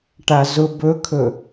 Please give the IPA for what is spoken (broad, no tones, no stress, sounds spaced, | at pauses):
ʈ a z ʊ b ɵ kʰ ɵ